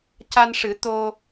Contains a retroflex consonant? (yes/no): yes